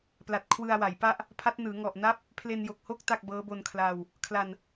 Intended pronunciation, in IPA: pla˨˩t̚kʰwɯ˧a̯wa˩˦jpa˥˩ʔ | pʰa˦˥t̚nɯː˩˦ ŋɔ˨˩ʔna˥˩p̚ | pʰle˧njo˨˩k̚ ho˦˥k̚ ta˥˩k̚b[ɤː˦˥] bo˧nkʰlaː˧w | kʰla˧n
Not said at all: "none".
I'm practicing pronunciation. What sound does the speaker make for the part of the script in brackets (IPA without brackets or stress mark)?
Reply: ɤː˦˥